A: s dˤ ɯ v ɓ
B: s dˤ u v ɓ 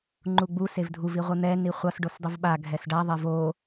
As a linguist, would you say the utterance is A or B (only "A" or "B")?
A